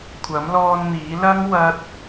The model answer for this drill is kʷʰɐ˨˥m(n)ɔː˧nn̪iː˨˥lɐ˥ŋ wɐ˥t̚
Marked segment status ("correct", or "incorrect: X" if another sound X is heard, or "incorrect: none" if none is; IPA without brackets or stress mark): incorrect: l